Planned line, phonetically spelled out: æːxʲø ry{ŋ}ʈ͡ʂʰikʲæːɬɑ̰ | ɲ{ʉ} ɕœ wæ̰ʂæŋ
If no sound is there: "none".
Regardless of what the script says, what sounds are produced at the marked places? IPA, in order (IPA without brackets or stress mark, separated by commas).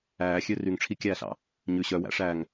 ŋ, ʉ